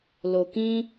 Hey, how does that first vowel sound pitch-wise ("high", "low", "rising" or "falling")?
low